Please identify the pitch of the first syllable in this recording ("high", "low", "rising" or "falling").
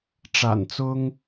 low